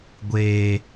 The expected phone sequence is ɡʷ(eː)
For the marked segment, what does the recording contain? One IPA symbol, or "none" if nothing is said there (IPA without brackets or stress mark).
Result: eː